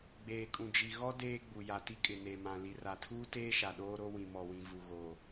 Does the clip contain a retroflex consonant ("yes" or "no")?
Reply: no